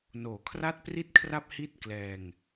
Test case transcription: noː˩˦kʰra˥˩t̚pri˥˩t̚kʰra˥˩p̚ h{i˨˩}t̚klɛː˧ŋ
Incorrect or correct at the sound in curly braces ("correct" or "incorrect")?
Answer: incorrect